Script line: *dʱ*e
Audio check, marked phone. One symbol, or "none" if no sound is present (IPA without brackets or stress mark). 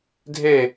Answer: dʱ